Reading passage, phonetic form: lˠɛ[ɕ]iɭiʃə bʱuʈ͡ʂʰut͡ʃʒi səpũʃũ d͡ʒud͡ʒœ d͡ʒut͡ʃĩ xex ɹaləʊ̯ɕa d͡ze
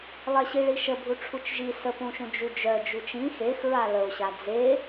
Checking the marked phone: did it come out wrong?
no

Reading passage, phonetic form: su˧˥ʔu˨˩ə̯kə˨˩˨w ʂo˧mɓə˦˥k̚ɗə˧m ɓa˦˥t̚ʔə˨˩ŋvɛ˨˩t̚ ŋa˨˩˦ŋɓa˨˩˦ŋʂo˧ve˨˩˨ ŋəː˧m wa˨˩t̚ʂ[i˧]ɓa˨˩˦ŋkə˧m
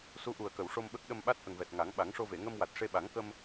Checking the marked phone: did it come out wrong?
yes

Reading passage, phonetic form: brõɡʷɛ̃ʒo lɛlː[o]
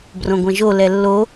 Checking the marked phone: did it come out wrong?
no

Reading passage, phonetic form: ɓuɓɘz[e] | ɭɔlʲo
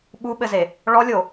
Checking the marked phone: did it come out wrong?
no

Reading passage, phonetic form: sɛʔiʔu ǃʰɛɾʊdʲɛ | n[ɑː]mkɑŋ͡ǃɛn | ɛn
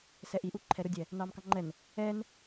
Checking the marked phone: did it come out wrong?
no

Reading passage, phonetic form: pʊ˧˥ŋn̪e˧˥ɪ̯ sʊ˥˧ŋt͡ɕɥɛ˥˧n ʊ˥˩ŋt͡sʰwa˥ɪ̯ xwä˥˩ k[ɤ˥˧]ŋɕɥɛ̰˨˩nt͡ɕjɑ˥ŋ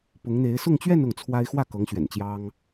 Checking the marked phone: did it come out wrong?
yes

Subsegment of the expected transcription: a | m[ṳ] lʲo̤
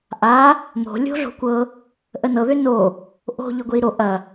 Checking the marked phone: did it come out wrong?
yes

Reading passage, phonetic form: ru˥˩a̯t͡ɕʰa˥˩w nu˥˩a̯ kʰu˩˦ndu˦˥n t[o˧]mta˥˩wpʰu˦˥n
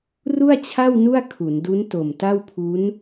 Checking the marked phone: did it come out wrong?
yes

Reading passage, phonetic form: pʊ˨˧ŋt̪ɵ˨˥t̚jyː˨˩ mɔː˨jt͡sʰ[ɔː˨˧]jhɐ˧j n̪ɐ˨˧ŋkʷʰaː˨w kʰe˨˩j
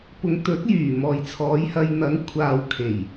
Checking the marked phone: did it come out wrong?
no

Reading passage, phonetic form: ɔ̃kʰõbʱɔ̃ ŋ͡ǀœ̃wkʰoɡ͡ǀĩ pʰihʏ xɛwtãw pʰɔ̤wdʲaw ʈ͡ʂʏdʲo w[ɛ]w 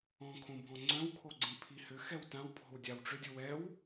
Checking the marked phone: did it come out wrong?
no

